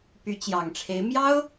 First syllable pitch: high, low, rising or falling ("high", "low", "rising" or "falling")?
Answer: rising